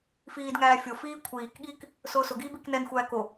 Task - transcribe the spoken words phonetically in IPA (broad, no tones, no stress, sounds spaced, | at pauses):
f iː d ŋ æː fʲ o f iː kʷʰ iː k ɠ iː k | s ʊː s ʊ ɡ iː b i k n ɛ n xʷ æː k o